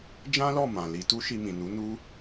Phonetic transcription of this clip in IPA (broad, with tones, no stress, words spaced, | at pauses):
d͡ʒã˦lɔ˦˨ mã˨ li˧ tu˦ʃi˧mĩ˨ nu˨˦ nu˦